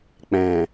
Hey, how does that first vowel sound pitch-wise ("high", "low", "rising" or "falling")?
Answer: low